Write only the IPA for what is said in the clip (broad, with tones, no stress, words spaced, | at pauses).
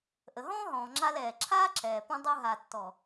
ʔə˨ɦɔ̃ː˦ɦɔ̃ː˨ŋ͡ǁa˧l ɛː˨ ǁʰaː˦ǁɛː˨pũ˧ dˤu˧ɦa˨tːɔ˨